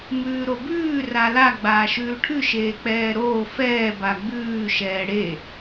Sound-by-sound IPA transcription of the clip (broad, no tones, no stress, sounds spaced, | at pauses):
m ʉː ɾ o b ʉː r a l a ɡ͡b aː ʃ ʉː ʈʰ ʉ ʃ eː k͡p ɛː ɾ oː f ɛː b a ɡ͡b ʉː ʃ ɛː ɽ e